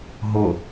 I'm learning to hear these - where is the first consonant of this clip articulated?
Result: throat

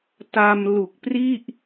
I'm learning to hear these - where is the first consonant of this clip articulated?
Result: tongue tip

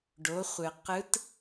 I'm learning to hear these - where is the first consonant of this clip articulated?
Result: retroflex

